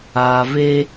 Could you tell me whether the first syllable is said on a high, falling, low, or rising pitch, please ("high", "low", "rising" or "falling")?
low